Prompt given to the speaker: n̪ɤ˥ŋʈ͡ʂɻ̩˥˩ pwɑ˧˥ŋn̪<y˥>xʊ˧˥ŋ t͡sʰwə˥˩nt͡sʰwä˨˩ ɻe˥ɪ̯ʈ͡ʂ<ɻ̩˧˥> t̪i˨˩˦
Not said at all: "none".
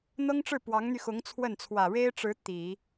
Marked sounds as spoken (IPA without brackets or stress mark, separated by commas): y˧, ɻ̩˧˥